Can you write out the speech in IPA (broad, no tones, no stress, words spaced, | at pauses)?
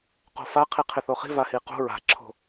qo̤fa qʰiqʰɪθoχi̤ vahiqo̤ ɹa̤ǁʰo̤